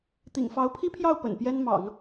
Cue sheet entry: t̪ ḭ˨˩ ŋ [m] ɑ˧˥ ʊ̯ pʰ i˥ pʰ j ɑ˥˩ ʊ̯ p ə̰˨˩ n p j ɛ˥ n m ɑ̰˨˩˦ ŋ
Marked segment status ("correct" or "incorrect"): incorrect